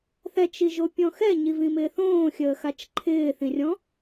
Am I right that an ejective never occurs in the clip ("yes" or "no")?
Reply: yes